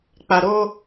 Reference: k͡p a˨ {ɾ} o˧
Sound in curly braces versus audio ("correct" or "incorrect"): correct